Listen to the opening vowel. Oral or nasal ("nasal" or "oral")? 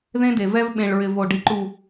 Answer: nasal